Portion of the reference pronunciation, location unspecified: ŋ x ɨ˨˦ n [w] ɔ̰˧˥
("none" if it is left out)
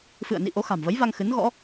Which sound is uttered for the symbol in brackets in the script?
ɣ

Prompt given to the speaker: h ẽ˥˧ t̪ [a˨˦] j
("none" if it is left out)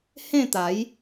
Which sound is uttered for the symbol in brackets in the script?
a˨˦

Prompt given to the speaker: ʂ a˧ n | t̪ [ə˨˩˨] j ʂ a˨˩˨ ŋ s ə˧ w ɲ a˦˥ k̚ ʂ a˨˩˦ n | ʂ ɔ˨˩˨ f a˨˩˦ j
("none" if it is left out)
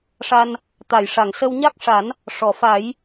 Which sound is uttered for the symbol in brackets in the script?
a˨˩˨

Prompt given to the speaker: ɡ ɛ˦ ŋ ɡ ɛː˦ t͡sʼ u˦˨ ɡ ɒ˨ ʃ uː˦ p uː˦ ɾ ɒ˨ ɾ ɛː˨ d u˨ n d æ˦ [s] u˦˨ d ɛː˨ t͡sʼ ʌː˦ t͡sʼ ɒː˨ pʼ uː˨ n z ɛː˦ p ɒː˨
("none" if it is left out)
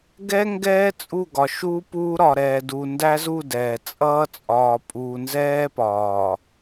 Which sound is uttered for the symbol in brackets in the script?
z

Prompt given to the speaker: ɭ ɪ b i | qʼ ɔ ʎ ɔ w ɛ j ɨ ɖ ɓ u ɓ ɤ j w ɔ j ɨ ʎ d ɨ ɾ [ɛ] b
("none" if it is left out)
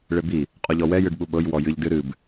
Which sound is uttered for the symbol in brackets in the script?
ɨ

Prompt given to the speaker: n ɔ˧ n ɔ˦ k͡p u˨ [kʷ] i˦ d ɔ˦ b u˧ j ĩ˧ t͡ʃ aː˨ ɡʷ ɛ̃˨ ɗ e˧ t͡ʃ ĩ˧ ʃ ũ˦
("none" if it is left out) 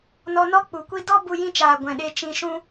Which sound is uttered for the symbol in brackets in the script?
kʷ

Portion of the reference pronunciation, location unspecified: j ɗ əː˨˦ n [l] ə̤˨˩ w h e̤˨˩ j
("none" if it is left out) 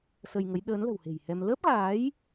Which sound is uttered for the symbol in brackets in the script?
l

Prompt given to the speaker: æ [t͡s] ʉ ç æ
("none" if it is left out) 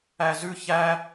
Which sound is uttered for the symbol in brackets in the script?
z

